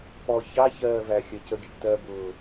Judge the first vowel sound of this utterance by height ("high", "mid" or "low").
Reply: mid